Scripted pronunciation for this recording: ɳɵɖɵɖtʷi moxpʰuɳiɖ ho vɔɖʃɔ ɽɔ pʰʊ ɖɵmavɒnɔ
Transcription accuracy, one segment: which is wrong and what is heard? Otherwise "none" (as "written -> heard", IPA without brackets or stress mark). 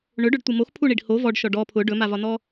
ɽ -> ɖ